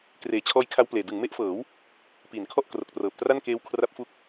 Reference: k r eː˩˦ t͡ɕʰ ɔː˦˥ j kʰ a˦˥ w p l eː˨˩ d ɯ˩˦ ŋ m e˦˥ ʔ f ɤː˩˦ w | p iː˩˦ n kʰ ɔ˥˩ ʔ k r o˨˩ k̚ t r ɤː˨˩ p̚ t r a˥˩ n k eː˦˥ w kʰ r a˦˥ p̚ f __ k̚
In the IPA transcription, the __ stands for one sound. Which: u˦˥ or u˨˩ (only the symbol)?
u˦˥